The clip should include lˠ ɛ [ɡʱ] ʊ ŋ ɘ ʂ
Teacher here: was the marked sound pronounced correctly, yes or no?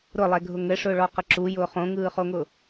yes